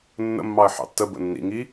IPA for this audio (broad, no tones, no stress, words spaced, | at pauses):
nːə̰mːɑə̯ ħɑ̰tːəbə̰ nːḭŋi